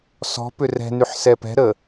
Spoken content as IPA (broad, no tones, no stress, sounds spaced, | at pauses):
s ɔ̤ p ʏ r ɛ̤ n y ħ s ɛ p ɛ̤ ɾ ə